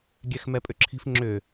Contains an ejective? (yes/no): yes